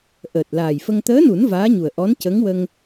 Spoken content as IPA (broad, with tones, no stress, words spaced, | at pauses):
ʔəː˨˩t̚laː˨˩jfə˧ŋ t̪əː˧˥nu˨˩˦n vaː˧˥ɲu˨˩ə̯ʔɔ˧˥n cə˧˥ŋwə˧ŋ